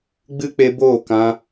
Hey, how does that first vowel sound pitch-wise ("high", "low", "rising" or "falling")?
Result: high